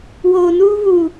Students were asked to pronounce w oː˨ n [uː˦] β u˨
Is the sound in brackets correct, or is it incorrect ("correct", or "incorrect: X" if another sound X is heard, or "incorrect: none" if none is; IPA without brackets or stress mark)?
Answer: correct